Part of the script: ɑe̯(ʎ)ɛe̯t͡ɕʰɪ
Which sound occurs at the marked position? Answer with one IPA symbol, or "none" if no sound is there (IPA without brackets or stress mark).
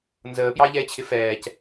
ʎ